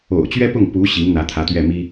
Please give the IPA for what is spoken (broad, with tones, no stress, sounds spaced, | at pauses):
o̰˨˩ ʊ̯ t͡ɕ ɥ ɛ˥ p ʊ˥˩ ŋ p u˧˥ ɕ i˧˥ ŋ n̪ ä˧˥ t̪ʰ ä˧˥ t̪ ɥ ɛ˥˩ m i˥